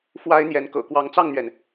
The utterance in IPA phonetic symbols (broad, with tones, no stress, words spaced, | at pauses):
fwa˥ɪ̯n̪jɛ˧˥n kɤ̰˨˩kwɑ˧˥ŋt͡sɑ˥˩ŋn̪ɥɛ˩n